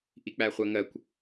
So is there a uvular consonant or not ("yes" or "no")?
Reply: yes